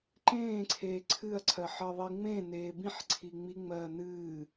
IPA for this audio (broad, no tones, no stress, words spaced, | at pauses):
ǃẽːǀʰeː ǀʰɨɐ̯ǀʰɜħɜðˤi ŋ͡mẽneː bĩħǀʰi ŋ͡miŋ͡mɜː nɨː